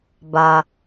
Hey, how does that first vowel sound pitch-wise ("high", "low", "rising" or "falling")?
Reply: low